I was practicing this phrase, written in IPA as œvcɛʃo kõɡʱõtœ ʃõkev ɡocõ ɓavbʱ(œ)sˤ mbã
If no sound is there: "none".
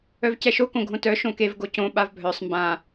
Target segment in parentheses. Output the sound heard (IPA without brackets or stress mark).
œ